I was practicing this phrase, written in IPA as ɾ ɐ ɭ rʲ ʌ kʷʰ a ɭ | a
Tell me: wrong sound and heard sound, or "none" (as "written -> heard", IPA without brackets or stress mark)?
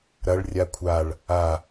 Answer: ʌ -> a